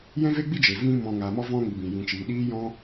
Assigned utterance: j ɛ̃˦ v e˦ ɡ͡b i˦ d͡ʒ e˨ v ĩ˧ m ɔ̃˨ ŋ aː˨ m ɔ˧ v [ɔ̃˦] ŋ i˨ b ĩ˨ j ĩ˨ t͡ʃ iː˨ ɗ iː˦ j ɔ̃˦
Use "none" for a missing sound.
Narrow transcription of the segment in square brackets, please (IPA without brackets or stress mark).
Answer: ɔ̃˦